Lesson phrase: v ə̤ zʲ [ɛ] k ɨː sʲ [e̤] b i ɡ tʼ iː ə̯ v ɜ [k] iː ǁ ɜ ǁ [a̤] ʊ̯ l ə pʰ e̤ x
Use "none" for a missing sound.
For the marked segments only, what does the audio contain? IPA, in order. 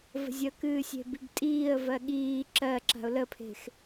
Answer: ə, e̤, ɠ, a̤

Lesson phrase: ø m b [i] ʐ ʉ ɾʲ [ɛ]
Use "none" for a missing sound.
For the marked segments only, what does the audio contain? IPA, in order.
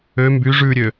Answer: y, ø

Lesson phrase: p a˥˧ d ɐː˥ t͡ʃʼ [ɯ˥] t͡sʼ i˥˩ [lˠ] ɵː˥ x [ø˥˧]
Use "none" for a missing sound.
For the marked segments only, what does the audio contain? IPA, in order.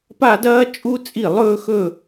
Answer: u˥, lˠ, ɵ˥˧

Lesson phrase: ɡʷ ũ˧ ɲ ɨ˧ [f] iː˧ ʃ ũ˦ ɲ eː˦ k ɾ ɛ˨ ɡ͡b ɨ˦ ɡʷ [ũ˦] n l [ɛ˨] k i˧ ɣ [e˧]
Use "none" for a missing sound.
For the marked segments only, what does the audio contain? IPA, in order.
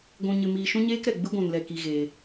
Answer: m, ũ˨, ɛ˨, eː˧

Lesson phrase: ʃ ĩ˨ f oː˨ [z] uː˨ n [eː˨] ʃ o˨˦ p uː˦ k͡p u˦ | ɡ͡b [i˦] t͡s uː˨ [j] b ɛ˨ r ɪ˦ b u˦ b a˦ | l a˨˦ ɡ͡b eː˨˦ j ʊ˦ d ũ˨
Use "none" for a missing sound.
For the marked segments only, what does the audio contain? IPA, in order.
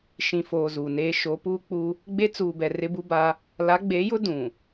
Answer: z, eː˦, e˦, none

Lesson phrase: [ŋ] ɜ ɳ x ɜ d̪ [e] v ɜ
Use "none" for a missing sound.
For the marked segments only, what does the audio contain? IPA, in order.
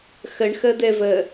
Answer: x, ɛ

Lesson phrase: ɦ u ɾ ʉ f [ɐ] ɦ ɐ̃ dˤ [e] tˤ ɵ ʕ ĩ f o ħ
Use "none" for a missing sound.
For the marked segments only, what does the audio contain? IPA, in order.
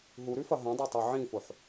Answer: ɐ, e

